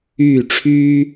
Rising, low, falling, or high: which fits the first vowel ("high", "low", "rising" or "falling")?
falling